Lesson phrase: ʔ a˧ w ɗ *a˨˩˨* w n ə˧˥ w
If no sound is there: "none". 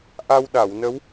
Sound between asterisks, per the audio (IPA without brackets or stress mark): a˨˩˨